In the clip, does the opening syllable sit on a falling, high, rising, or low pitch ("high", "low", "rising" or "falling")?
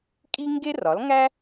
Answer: high